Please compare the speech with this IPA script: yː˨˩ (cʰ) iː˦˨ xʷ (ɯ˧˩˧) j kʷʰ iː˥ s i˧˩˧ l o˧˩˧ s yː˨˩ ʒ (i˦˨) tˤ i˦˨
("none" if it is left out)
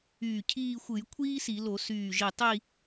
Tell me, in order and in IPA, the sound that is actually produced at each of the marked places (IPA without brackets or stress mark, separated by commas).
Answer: cʰ, ɯ˧˩˧, i˨˩